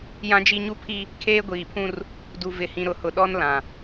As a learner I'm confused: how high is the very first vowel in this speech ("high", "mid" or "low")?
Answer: low